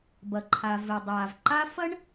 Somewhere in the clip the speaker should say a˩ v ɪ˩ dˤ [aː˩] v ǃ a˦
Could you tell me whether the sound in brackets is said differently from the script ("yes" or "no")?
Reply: no